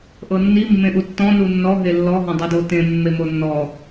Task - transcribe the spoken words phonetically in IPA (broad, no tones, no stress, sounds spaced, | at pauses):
ʔ ɤ nː i mː ẽ ʔ u tː ɔ̃ n u nː ɔ ɦ e lː ɔ ɦ ɔ̃ dˤ i d o t ẽ mː e m o nː ɔ